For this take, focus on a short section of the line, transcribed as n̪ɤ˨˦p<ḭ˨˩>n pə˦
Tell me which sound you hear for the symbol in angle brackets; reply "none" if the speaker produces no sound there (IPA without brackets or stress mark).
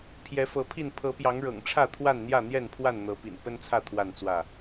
ḭ˨˩